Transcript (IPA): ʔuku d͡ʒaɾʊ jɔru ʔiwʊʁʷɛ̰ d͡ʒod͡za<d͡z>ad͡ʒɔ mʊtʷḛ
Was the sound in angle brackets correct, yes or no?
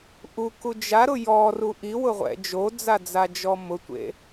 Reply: yes